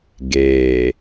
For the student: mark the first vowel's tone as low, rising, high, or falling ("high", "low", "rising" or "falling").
low